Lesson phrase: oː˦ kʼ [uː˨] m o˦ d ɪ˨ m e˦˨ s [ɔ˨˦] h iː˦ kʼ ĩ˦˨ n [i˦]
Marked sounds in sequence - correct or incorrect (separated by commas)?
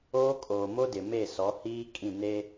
incorrect, correct, incorrect